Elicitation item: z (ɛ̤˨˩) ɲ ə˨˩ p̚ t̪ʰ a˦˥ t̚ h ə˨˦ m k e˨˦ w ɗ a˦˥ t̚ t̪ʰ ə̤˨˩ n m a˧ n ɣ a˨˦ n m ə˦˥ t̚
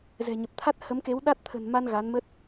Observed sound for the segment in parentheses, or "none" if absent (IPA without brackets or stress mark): ɛ̤˨˩